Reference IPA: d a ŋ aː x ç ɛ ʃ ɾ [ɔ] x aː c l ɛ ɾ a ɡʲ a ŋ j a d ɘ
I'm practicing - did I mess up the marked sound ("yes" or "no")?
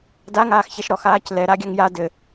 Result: no